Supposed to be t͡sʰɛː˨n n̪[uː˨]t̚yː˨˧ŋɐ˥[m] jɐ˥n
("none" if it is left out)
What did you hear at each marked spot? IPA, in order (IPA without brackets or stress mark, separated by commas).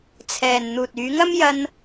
uː˨, m